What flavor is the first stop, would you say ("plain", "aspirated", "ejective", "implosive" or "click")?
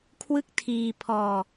aspirated